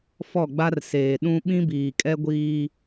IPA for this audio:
fɔ˦˨ɡ͡ba˦rseː˨ ɗũ˦ ɓĩ˦biː˨kʼɛ˦ɡʷiː˦

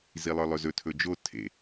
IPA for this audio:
zilˠə˞lˠɵzɵ tʰɵd͡ʒo tʰḛ

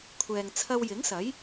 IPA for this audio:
kʷʰɛː˨ŋt͡sʰɐ˧wjɪ˨˥ŋsɐ˨˥j

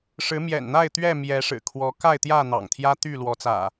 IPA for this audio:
ʂɻ̩˨˦mjɛ̰˨˩nn̪a˥˨ɪ̯ t̪ɥɛ˥˨ mjɛ˨˦ʂɻ̩˨˩kʰwɔ˨˦ ka˥˨ɪ̯t̪jä˥˨ n̪ɑ̰˨˩ŋ t̪ʰjä˦t̪y˥˨ lwɔ˨˦t͡sä̰˨˩

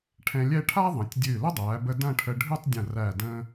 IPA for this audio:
ʈʰɛ̃˧lʲɛ˥˧ ʈʰa˥ðˤɐ̃˩˧tʲ dʲɨː˧˩lə˥dˤæː˩˧bə˧ dɐ̃˥˧ʈʰə˧ ɖʱɨ˥˧tˤdʲɐ̃˧˩ ræ˧˩də̃ː˧

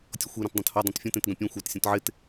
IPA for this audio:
tʲɔxʷe ɾɐ̃tdˤẽthɔ dˤãtfʲɔ̃tẽt ɡɐ̃pʲẽ xʷat sʲɔ̃tʕɪt

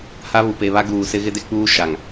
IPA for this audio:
ha˦βu˨pe˨βa˦ ɡuː˨sɪ˦ ɣɪ˦de˦ k͡puː˦ ʃa˨ŋ

